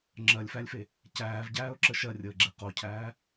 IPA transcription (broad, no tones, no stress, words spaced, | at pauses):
ŋ͡ǁɜlʲfælʲfe | cæːvɟæːʊ̯ǁə ʃɜrʲəːɡ͡ǁe qocʰæː